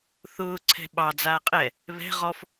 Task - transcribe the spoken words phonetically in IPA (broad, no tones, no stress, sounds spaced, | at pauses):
θ ʊː ǀʰ ɛ̤ ɓ ɑ d͡z aː qʼ ɛ | β ɛ̤ ʁ ɔ f